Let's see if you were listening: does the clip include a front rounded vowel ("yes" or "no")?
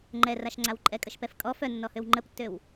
yes